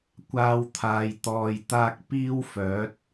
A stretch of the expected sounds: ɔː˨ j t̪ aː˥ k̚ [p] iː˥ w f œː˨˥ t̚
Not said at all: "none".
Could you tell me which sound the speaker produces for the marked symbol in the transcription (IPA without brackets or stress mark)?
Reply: p